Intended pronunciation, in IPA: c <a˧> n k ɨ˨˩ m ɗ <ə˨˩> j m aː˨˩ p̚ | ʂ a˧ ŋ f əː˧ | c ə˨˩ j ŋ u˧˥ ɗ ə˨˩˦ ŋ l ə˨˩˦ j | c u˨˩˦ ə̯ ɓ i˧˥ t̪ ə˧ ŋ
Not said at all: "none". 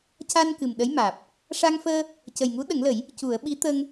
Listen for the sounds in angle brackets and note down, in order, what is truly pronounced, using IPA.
a˧, ə˧˥

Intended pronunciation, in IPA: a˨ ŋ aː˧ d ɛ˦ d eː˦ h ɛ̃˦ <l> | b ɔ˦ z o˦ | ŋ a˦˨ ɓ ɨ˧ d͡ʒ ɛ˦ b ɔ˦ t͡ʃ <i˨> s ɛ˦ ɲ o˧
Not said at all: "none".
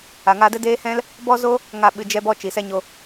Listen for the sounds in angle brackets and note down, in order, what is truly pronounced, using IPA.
l, i˨

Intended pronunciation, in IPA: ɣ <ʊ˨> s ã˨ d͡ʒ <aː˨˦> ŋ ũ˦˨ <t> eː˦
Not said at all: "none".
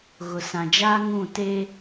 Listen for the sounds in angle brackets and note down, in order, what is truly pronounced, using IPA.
ʊ˨, aː˦, t

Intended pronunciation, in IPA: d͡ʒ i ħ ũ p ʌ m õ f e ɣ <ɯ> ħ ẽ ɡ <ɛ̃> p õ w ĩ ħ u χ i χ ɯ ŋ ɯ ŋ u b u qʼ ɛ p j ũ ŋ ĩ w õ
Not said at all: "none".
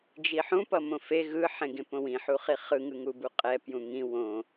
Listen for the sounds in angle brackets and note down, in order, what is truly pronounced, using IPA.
ɯ, ẽ

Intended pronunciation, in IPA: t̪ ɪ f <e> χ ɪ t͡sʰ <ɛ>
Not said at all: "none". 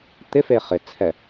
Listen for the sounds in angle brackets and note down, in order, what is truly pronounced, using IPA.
e, ɛ

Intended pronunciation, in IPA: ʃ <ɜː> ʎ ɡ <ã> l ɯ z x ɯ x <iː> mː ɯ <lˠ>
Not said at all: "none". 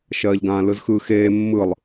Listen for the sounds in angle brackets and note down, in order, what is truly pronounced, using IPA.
ɜː, ãː, eː, lˠ

